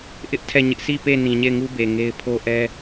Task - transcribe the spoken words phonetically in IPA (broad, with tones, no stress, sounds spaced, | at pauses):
ʔ ɪ˦ ʔ tʰ ɛ˦˨ ɲ ɪ˦ ʔ s i˦˨ p e˦˨ n ĩ˨ ɲ e˦˨ ɪ̯ ŋ u˦ b e˨ ŋ e˦ ɪ̯ pʰ o˦ ʔ ɛ˦